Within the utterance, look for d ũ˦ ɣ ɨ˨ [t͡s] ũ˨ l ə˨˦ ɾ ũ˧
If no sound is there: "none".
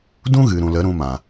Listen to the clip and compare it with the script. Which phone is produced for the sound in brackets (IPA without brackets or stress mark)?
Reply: ɾ